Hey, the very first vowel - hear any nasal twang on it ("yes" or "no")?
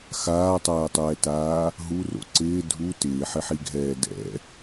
no